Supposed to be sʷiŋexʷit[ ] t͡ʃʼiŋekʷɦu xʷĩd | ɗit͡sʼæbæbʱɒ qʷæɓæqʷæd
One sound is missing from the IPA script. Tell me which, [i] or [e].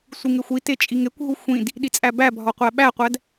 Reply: e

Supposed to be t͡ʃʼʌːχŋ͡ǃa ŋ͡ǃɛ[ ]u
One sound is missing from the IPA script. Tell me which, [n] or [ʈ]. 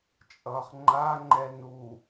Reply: n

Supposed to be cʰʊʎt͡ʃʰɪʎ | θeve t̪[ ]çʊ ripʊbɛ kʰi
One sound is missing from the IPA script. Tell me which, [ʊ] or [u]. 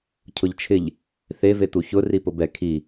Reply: u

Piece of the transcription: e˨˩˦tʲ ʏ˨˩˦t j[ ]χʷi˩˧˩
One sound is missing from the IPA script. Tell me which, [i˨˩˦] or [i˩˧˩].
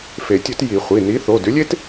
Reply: i˨˩˦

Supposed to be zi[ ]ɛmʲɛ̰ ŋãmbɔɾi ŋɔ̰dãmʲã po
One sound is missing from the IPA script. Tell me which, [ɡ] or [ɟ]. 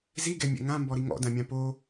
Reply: ɡ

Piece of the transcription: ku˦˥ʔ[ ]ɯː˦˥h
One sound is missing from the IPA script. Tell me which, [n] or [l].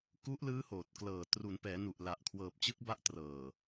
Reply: l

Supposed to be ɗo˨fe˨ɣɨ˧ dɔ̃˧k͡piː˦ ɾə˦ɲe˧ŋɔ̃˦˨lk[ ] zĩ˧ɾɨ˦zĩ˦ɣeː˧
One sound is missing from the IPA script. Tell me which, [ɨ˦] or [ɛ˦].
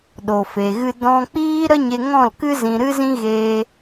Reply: ɨ˦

